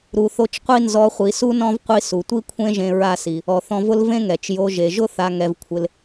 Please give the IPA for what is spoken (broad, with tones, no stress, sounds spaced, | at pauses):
ɾ u˨ θ o˧ t͡ʃ qʷ i˦ n z ɔ˧ χʷ i˨ s u˦ n ɔ̃˦ v qʷ i˧ s u˨ tʷ i˦ kʷʰ ẽ˦ ʒ ẽ˧ ɹ a˦ s i˧ | ɔ˨ θ ɔ̃˧ v ʊ˦ l v ẽ˦ ŋ ɛ˨ t͡ʃ j o˧ ʒ e˨ ʒ ʊ˦ θ a˧ ŋ ɛ˧ v kʷʰ ɪ˧ l